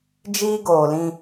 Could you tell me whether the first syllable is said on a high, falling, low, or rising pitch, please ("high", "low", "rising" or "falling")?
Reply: high